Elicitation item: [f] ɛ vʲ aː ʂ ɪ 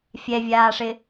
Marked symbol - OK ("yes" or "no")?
no